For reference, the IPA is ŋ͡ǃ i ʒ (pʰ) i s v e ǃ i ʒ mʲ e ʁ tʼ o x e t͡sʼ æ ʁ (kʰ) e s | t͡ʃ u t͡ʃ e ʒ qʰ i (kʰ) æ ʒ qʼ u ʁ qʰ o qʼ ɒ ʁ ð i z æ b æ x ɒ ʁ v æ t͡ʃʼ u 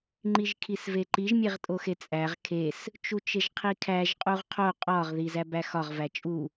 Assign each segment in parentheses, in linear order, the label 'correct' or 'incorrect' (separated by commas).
incorrect, correct, correct